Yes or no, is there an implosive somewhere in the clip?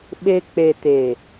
yes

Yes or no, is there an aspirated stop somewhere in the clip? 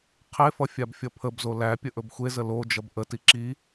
yes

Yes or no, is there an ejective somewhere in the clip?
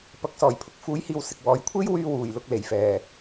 no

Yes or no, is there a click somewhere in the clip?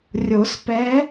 no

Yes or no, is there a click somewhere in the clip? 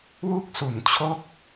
no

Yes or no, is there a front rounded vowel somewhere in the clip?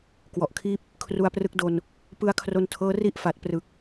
no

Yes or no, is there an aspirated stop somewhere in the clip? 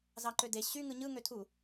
yes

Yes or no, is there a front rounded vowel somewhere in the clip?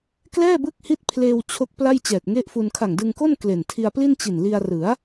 no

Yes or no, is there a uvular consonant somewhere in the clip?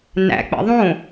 no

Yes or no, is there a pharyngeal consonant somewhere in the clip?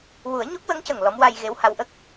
no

